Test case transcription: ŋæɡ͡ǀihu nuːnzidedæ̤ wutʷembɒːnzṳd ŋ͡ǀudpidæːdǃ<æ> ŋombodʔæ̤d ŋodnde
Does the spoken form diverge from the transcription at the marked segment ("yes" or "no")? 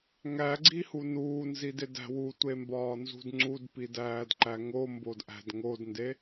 no